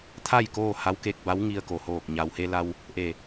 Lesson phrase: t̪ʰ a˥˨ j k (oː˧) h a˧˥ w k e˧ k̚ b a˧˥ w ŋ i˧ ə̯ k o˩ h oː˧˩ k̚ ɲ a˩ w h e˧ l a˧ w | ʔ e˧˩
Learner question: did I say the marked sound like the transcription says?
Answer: no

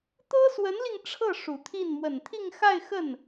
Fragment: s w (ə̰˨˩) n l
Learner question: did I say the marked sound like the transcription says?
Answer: no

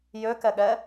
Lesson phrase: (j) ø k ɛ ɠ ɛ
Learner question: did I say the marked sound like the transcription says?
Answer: yes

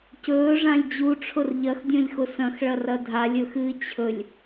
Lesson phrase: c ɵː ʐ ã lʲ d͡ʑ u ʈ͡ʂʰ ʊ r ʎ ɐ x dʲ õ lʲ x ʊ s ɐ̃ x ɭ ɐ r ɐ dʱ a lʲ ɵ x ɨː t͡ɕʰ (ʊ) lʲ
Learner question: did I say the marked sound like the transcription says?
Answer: no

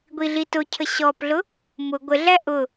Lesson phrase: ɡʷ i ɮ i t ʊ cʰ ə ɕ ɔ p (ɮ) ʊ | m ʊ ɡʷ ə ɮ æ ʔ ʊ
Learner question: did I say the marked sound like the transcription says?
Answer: yes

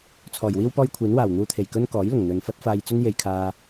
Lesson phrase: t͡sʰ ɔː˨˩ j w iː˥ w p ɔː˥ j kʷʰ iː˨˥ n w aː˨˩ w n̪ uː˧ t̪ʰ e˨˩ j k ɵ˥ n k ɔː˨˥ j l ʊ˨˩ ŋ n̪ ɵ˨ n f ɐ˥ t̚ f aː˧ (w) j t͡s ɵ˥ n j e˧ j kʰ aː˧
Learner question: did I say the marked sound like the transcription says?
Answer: no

